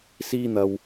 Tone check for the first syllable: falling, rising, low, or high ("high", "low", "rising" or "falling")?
high